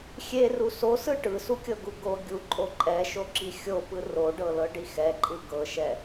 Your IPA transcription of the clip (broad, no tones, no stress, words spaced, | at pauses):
xʲeru sosɯ ʈɯsukʲɤɡu ɡo ɡʲuǃʼo ǃʼɛʃoǁi xʲopɯ roɖɤlɤɖi xɛǃʼɯ ɡɤʃɛ